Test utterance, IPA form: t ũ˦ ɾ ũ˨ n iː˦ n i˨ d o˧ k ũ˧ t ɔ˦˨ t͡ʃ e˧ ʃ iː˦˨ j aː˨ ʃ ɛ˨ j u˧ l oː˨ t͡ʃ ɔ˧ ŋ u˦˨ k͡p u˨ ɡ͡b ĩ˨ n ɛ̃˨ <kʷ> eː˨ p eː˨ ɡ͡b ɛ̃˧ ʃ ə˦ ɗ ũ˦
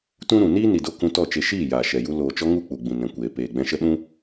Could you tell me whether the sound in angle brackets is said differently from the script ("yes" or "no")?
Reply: no